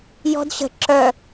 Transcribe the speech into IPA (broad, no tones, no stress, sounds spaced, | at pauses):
j ɔ̤ d ɕ ə̤ ǁ œ